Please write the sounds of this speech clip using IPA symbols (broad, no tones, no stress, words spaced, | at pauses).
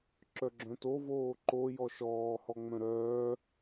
ǁœɡ͡ǁœ̃to voːǃo jɔʃɔː hɔŋ͡mœ̃ɾœː